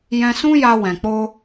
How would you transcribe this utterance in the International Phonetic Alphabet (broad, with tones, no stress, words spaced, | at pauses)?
jɛ̃˧sũ˦ja˧ wɛ̃˨k͡po˧